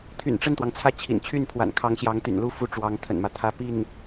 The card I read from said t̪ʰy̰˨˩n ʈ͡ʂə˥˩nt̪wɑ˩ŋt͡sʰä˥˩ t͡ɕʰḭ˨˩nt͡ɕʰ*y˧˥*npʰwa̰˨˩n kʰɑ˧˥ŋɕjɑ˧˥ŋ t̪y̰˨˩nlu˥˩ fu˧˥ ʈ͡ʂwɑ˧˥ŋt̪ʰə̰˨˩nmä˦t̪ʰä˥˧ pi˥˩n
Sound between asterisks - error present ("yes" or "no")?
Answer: yes